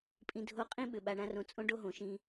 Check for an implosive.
present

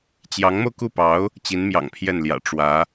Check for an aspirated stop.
present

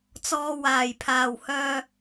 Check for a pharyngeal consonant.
absent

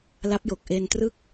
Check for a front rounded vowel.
absent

